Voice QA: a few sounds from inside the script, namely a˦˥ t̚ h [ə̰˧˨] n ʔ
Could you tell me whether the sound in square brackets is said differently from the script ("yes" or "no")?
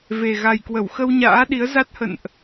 no